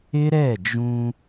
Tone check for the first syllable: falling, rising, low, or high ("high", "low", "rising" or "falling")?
high